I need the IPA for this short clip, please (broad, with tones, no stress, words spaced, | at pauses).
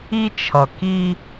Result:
i˦t͡ʃʰʌ˨ki˦